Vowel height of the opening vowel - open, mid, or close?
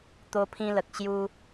mid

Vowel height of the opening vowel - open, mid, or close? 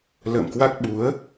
mid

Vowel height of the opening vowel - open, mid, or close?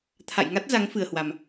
open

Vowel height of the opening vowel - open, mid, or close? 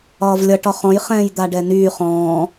open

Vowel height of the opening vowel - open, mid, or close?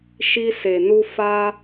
close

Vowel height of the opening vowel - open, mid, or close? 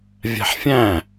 open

